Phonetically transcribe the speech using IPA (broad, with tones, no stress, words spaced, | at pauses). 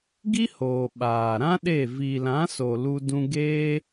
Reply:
ɡi˦hoː˨ ɓaː˨ɾã˦ ɗe˦˨ vi˨lã˨˦so˨ lu˦dũ˦ ɡeː˦